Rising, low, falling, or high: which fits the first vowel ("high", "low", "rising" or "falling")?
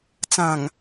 low